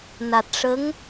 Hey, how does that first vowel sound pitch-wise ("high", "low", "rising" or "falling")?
low